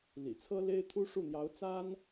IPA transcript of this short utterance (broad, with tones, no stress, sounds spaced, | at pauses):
l ḭ˨˩ t͡sʰ ɤ˥ l e˥ ɪ̯ t̪ʰ u˥ ʂ u˥˩ n̪ j ɑ˧˥ ʊ̯ t͡s a˥ n